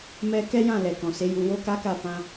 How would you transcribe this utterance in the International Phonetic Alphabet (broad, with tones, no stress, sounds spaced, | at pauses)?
m ɛ˦ k ɛ˦ j ã˦˨ l ɛ˨ k ɔ̃˨ s e˨˦ j u˧ w o˦ k a˦ k a˦˨ f ã˧